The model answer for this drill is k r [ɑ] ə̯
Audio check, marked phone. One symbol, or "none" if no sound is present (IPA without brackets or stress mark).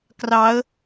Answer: ɑ